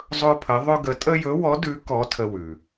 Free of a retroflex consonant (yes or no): yes